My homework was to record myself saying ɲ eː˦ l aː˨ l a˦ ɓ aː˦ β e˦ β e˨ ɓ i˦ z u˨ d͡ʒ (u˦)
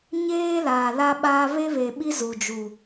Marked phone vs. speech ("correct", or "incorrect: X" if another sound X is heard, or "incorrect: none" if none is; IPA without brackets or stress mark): incorrect: u˨